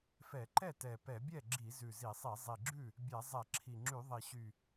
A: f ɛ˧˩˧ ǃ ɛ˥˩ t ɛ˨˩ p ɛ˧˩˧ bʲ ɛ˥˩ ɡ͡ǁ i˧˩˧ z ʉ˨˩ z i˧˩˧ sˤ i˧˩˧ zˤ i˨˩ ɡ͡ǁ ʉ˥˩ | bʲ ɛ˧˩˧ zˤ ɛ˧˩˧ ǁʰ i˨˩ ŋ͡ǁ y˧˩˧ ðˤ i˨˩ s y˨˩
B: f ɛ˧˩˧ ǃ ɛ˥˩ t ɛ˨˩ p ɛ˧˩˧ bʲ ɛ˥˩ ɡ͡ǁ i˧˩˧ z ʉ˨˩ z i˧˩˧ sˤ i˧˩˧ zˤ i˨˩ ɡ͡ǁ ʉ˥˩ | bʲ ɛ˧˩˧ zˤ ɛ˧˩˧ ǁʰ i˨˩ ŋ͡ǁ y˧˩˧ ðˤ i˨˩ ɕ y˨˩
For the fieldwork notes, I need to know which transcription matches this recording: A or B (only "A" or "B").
B